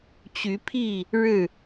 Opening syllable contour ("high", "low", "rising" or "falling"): rising